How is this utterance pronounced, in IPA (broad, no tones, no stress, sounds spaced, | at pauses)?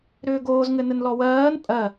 ɾ ʏː ɡ oː z ŋ ɘ n ɘ n l ɔ w ɜː n pʼ ɜ